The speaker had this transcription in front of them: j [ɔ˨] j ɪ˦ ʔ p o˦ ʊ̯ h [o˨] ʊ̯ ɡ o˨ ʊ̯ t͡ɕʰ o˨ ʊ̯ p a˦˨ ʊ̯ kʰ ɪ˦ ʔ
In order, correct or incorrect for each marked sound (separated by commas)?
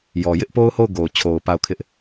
correct, incorrect